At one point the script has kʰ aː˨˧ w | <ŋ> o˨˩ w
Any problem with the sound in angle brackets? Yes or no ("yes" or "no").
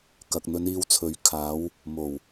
yes